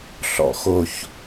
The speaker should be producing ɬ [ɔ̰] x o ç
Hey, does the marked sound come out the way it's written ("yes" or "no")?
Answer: yes